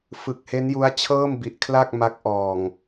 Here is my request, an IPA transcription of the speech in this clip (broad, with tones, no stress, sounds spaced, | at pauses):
f ɯ˨˩ k̚ h e˦˥ n j u˦˥ a̯ t͡ɕʰ ɤː˥˩ m b i˨˩ ʔ kʰ l a˥˩ k̚ m a˦˥ k̚ ʔ ɔː˨˩ ŋ